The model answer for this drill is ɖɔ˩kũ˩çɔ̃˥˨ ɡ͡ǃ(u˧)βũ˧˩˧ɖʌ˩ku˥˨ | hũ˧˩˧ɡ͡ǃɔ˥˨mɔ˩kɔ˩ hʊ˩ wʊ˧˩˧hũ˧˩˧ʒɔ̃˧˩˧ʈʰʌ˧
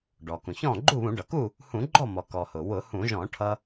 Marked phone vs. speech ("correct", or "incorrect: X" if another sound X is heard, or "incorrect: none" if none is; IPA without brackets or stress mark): incorrect: u˥˨